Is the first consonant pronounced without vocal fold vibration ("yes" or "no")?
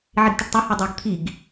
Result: no